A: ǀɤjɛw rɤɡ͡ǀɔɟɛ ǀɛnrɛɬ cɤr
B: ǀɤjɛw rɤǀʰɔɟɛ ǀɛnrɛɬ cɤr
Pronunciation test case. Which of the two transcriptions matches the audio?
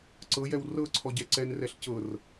B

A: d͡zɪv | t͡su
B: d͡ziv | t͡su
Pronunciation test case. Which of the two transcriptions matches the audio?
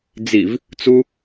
B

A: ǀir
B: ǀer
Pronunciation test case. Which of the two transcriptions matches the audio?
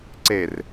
B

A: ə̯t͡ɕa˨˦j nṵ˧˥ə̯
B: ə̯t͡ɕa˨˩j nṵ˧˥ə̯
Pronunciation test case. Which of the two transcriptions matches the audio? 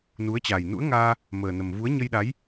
B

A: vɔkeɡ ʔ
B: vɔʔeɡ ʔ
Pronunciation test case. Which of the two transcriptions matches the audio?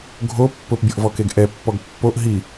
A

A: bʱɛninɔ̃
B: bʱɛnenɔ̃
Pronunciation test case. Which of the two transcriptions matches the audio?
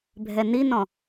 A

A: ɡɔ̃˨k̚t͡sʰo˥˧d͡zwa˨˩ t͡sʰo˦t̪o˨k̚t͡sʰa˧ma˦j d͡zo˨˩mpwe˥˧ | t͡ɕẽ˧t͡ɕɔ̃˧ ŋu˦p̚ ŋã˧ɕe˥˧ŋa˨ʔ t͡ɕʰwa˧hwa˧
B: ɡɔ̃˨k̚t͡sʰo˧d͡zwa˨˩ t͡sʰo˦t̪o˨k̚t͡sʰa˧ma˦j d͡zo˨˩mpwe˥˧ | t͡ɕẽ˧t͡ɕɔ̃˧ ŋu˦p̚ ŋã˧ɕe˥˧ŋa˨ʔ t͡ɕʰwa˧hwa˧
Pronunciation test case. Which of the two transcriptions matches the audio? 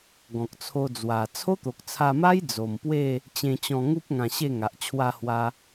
B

